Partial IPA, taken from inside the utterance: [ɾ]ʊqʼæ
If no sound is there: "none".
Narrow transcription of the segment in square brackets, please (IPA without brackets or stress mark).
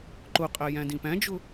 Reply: ǃ